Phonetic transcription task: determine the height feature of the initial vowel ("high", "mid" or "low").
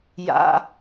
low